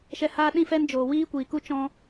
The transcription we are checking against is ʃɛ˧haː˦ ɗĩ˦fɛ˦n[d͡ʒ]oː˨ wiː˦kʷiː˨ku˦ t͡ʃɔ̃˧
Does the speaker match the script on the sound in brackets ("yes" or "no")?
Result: yes